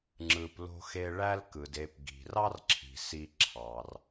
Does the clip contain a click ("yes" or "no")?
yes